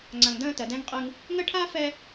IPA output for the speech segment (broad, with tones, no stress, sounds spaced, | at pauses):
ŋ͡ǀ ã˨ ŋ d ə̃ː˦ t ɜ˨ d ɛ̃˦ ŋ qʼ ɯ˦ ŋ | ŋ ə˦ ʈʰ a˦ f ɛ˦